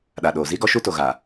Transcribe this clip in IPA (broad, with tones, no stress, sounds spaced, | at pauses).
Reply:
ɗ a˨ ɗ oː˨ z i˦ ɡ ɔ˦ ʃ u˦ t o˨ ɣ a˨